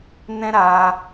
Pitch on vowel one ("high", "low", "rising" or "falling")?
high